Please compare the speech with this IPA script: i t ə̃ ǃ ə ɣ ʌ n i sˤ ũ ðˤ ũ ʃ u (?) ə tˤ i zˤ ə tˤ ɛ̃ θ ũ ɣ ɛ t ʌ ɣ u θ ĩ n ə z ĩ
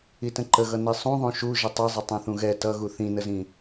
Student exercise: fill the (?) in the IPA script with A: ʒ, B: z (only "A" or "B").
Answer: A